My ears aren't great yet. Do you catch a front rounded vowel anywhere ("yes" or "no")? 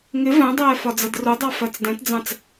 no